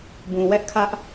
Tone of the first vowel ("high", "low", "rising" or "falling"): low